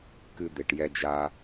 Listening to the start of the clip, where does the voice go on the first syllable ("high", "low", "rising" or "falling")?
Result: low